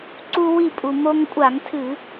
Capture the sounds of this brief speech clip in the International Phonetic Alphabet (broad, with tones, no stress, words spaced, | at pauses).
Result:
ǀu˧wi˧˩pʼu˩ mo˧ŋkʷʼa˧˩˧ŋtʰɨ˧˩˧